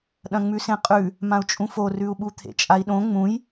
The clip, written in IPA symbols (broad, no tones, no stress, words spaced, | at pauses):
ɗɐ̃ŋ͡mʉsẽqʼʉ | mãu̯t͡ʃʼũforʉu̯ ɓut̪ʰḛt͡ʃʼai̯ɗõ ŋ͡mũj